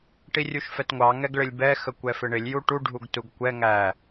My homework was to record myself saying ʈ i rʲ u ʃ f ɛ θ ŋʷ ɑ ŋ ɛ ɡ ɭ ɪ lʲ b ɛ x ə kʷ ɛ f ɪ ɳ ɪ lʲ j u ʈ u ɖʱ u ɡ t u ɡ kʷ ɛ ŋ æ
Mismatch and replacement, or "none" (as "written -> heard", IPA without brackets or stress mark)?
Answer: θ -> t